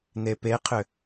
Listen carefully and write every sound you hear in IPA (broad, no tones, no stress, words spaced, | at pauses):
nepeqʰʏ